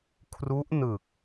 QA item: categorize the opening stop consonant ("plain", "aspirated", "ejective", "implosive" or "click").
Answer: aspirated